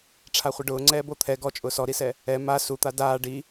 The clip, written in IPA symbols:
ʈ͡ʂʰ a χʷ ɪ ɖ ʊː ŋ͡ǀ ɛː b o t̪ʰ ɛ ɡ ɔ t͡ʃʼ ʊː s ɔ ɾ i s ɛ | ɛ m a s u t̪ a d aː ɖ i

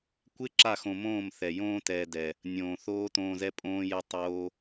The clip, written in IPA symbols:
kʷ ɪ˦ ǁ a˦˨ x õ˨ m õː˦˨ m θ ɛ˨ j õː˦ t ɛː˨ d ɛ˨ | nʲ õː˨ θ oː˦ t õː˧ z ɛ˦ pʼ õː˦ j ɛ˦ tˤ oː˦

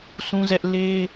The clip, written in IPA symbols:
s ũ˦ z ɛ˦ ʔ l e˦

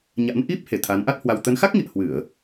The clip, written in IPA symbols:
ɲ a̰˧˥ n ʔ i˦˥ p̚ h e˨˩ t̪ʰ a˨˦ n ʔ a˦˥ t̚ h w a˧ w t̪ ə˨˦ n x a˦˥ k̚ ŋ ḭ˧˨ ə̯ h w ɨ˧˩˨ ə̯

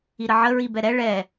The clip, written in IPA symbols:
i ɾ ə ʕ ə ɹ i b ɛ ɾ ɛ ɭ ɛ

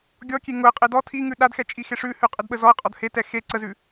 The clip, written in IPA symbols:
ɡʲ ɔ kʲ e ŋ ʊ ə̯ qʼ e d ɔ tʰ i ŋ ʉ ɗ a d x ɛ t͡ʃʼ i x e ʂ ʉ h ʉ qʼ ɛ d ɓ ə z ɔ ə̯ qʼ ɔ d h e t ɛ x e ǀ ə z ʉ

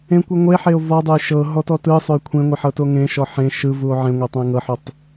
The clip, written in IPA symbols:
ẽ kʷ ɯ ŋʷ e ħ e o̯ v ɔ dˤ o j ʃ ɤ ɦ ɔ t ɔ t ɯ sˤ o j kʷʰ ẽ ŋʷ e ħ ɤ t o ŋ ẽ ʃ ɔ ħ ẽ ʃ ɯ v u o̯ ʕ ẽ ŋʷ e tˤ õ e̯ ŋ ɤ ħ o tˤ

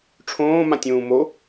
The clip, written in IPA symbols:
ʈ͡ʂʰ õː m ã tʲ ũː m o

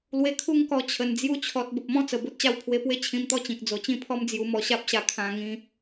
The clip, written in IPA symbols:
l w e˧ kʰ u˦ ŋ k ɔ˧ t͡ɕʰ ə˨˩ n d͡z j u˧ t͡ɕʰ ɔ˨ t̚ b ə˨ p̚ m ɔ̃˦ t͡s ə˨˩ b o˦ t̚ t͡ɕ a˥˧ w pʰ w e˧ p w e˦ t͡ɕʰ ĩ˧ m t̪ ɔ˥˧ t͡ɕ ĩ˨ k̚ d͡z o˨˩ t͡ɕ ĩ˥˧ pʰ ɔ˦ m d͡z j u˧ m ɔ˧ ɕ a˦ p̚ ɕ a˧ kʰ ã˧ ŋ ĩ˧

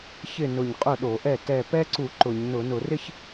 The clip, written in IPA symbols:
ç ɪ˥˩ n ʊ˧˩ ɲ qʼ ʊ˥˩ ɗ o˧˩˧ ʔ ɛ˥˩ t ɛ˧˩ p ɛ˦˥ ǀ u˧˩˧ ǃ ʊ˧˩˧ ɲ n ʊ˧˩˧ n ʊ˧˩˧ r ɪ˥˧ ç

